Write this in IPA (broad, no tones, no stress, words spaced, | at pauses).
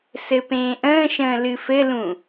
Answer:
sɘpẽːʔə̃ːʃə̃ː lɨfɘlũ